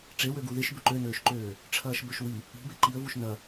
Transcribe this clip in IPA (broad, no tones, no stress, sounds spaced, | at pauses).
ʈ͡ʂ e w ø ɡ u ð ɪ ʃ b ʏ ǃ ø n øː ʃ ǃ øː | ʈ͡ʂʰ ɐː ʃ b ø ʃ w i | i̤ b e ǃ i ə̯ v u ʃ n ɐ